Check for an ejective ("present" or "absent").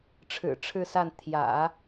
absent